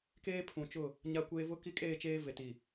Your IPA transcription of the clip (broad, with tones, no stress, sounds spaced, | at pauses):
k eː˦ pʰ ũ˨ t͡ʃ ʊ˦˨ | ɲ a˦ kʷ eː˦ v ʊ˦ k i˦ kʼ eː˦˨ t͡ʃ eː˦ v e˨ t i˨